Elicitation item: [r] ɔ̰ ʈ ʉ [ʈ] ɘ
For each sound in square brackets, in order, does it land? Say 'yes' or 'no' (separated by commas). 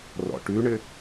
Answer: yes, no